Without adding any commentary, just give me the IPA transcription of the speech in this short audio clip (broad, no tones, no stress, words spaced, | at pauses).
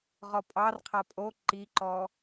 ʁɔpʼɑrqʰa pʼo ǃiǃɔ